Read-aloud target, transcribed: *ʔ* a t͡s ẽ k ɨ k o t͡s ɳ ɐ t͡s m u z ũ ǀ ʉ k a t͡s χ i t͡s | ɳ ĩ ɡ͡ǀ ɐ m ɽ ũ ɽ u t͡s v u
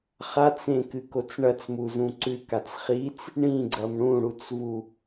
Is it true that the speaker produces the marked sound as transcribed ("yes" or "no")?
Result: no